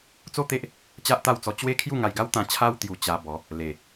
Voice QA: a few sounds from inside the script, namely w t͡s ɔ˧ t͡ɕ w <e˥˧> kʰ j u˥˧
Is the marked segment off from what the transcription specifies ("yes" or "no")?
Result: yes